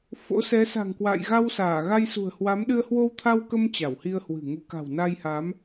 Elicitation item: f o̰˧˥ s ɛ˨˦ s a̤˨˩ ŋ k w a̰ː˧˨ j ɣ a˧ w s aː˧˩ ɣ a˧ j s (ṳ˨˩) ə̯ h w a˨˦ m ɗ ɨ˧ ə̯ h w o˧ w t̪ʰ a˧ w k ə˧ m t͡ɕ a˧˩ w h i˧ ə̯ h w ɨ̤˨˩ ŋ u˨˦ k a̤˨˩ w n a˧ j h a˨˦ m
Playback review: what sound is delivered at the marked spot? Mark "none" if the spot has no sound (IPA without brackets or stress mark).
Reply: ṳ˨˩